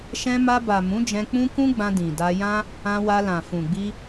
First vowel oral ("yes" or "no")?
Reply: no